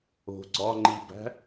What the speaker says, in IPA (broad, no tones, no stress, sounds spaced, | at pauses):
o̤ ɡ͡ǀ ɒ ŋ͡ǃ i b æ̤